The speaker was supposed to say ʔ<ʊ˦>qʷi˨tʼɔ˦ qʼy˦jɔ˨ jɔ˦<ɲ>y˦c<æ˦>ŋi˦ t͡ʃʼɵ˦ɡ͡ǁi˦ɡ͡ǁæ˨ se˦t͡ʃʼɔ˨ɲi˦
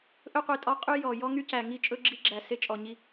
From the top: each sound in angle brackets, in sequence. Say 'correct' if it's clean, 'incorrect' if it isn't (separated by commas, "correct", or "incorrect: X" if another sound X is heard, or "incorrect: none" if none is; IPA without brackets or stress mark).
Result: incorrect: ɵ˦, incorrect: ŋ, incorrect: æ˨